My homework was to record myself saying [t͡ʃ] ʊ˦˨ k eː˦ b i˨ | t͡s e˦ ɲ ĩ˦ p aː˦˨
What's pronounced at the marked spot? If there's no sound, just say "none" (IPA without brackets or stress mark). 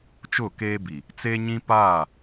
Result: t͡ʃ